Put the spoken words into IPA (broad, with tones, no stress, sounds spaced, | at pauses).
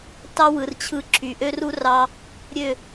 t ɑ˦ w ɯ˨ r t͡ɕʰ ɯ˦ ǁʰ y˨ ʔ ø˦ r u˦ r ɑ˧ | ɾʲ ø˦˨